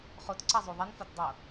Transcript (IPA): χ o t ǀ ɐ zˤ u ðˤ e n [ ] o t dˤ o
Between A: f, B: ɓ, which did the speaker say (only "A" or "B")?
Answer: A